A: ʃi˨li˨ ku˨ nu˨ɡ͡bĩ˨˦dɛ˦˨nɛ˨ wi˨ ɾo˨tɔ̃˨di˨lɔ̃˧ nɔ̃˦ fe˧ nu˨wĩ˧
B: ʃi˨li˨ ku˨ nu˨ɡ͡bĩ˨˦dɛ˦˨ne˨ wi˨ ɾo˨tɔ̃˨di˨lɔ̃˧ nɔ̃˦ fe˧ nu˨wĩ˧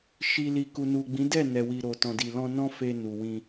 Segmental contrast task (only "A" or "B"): A